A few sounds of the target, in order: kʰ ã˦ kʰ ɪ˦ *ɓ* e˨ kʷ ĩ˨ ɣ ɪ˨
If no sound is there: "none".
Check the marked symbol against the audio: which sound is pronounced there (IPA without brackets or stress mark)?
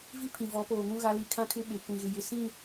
ɓ